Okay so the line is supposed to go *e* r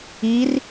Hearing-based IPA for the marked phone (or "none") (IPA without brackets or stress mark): i